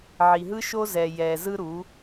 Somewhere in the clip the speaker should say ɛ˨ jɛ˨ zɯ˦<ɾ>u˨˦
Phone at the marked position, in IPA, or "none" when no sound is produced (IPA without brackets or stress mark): ɾ